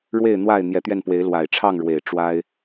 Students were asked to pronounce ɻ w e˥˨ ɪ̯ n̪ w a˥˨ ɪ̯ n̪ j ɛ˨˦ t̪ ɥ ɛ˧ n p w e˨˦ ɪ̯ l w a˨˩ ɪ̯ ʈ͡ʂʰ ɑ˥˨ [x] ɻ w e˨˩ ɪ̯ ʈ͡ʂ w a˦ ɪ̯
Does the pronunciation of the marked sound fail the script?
yes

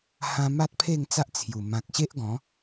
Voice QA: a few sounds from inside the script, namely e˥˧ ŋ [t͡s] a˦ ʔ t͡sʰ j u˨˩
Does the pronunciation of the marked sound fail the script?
no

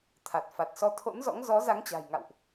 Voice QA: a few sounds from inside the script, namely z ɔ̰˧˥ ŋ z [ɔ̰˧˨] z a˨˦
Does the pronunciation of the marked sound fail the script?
yes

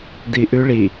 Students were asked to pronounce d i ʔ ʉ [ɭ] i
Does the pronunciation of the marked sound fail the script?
no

